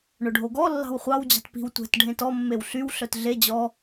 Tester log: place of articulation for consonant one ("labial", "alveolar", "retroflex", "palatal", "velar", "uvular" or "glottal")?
retroflex